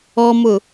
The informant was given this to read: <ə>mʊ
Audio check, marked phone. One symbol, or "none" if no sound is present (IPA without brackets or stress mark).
ɔ